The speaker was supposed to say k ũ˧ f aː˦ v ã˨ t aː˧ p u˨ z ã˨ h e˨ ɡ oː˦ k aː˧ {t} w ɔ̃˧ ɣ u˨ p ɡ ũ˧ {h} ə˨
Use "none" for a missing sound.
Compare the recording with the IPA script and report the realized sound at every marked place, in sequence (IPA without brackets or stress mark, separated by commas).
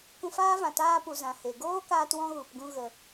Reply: t, ɣ